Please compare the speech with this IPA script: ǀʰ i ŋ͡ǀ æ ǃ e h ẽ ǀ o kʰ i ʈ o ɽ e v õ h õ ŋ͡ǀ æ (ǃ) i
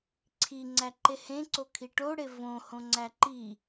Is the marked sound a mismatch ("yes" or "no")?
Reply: no